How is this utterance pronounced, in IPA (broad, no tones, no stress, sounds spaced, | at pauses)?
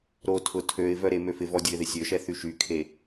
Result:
ɾ o tʰ ʊ tʰ ø ɪ̯ v œ ɾ e m ø f ɪ v ɔ dʲ ʊ ɪ̯ ð ɪ sʲ ø ʃ ɛ θ y ʃ y kʰ e